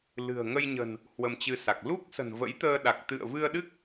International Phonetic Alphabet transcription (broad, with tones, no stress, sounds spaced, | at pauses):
l ɨ̤˨˩ ə̯ ŋ ə˧ j ɲ ə̤˨˩ n | h w ə˧ m t͡ɕ ɨ˧ s a˨˩ k̚ l u˦˥ k̚ s ə̤˨˩ n v ə̰˧˥ j t̪ əː˧ ɗ a˨˩ k̚ t̪ ɨ̰˧˨ ə̯ v ɨ˧ ə̯ ɗ ɨ˦˥ k̚